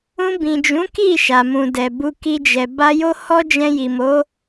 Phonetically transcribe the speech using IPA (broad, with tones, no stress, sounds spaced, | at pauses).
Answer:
ũ˧ b ĩ˨ d͡ʒ ũ˨˦ k i˦˨ ʃ a˨ m ũ˨ d ɛ˨ b u˧ k i˧ d͡ʒ ɛ˨ b a˧ j o˦ h ɔ˦ d͡ʒ ɛ̃˧ j i˨ m o˨˦